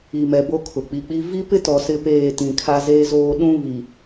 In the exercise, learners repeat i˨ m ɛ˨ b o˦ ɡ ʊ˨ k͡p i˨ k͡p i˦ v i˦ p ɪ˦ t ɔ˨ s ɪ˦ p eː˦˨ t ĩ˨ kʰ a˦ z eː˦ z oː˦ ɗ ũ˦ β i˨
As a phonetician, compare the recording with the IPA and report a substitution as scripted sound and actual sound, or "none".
ɡ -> kʰ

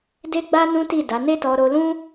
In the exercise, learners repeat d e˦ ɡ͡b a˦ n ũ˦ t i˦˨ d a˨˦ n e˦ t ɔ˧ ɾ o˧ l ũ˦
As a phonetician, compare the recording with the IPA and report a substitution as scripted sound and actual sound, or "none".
none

